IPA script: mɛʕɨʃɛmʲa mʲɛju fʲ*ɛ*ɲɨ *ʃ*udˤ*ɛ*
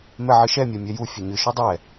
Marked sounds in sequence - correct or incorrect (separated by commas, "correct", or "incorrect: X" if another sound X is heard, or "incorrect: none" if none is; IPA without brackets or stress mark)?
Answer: incorrect: ɘ, correct, correct